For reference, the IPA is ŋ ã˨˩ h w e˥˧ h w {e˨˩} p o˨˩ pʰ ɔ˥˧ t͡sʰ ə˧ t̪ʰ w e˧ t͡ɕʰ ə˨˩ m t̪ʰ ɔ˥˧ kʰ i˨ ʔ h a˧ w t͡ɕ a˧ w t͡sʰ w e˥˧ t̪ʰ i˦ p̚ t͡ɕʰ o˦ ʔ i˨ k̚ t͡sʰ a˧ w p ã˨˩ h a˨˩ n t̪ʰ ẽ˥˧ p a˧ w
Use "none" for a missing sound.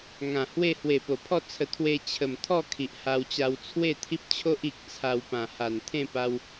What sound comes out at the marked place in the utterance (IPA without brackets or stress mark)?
e˨˩